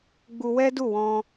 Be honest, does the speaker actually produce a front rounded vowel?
no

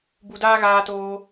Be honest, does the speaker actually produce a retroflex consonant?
no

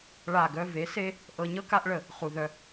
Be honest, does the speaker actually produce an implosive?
no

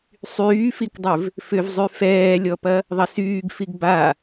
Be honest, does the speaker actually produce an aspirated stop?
no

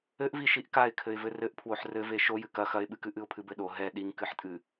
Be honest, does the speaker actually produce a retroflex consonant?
no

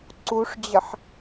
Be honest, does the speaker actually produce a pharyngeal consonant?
yes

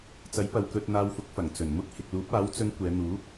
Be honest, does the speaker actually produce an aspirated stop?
no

